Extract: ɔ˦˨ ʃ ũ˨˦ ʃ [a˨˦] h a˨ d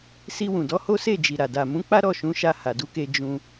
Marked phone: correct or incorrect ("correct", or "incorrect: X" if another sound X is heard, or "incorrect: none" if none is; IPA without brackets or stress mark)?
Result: incorrect: a˧